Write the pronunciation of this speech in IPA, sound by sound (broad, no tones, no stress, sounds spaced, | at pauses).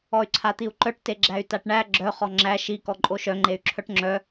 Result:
ɔ y̯ ǀʰ a t̪ i u̯ ǃ œ ʈ t e ɡ͡ǁ æ y̯ t a ʈ ɳ æ ɡ͡ǁ œ χ ɔ ŋ͡ǁ æ ʃ i k ɔ ǃʼ o ʃ œ ŋ͡ǃ e y̯ ǁʰ œ ʈ ŋ͡ǁ œ